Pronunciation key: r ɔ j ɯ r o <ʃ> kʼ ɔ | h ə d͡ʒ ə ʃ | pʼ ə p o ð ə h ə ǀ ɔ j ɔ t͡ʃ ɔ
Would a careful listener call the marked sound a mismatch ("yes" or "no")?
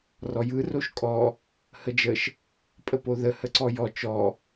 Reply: no